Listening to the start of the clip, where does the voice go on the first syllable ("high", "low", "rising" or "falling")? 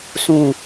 low